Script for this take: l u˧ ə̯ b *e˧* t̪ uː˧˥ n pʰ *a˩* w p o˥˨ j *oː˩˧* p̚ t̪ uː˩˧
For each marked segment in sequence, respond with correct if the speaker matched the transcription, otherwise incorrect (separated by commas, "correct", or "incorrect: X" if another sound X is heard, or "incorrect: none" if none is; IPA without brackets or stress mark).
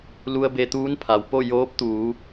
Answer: correct, correct, incorrect: oː˧˥